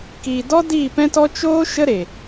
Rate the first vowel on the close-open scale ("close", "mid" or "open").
close